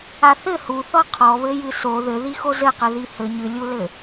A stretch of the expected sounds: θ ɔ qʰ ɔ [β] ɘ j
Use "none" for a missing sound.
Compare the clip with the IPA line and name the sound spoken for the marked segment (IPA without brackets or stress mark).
β